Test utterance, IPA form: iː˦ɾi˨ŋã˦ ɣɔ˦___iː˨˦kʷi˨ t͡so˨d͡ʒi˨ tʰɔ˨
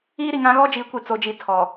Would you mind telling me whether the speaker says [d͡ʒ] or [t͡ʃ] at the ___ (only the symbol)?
d͡ʒ